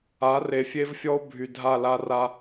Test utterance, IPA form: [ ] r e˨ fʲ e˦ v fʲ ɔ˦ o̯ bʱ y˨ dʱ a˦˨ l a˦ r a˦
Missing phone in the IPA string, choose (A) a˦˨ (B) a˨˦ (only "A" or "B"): B